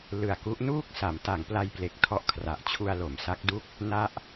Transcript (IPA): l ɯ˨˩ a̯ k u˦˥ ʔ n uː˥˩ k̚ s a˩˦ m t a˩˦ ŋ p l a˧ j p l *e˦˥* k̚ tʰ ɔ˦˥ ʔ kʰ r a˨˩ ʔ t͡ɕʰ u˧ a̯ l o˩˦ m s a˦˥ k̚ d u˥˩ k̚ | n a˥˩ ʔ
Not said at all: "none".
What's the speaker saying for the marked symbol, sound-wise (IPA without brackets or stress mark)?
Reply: e˨˩